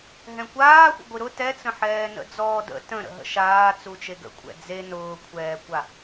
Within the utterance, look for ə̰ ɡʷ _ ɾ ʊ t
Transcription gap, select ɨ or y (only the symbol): ɨ